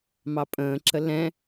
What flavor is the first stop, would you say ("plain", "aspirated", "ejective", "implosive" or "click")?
ejective